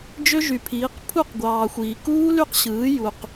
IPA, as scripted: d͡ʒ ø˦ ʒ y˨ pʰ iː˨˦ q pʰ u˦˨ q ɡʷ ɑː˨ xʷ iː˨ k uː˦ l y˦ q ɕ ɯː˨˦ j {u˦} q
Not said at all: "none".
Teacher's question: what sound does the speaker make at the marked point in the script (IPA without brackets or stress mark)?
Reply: u˧